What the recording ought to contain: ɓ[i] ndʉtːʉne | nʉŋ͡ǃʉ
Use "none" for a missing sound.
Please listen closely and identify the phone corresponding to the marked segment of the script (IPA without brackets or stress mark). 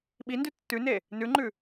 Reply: i